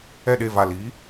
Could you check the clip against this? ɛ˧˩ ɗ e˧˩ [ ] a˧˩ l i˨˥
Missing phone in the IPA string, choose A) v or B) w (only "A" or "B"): A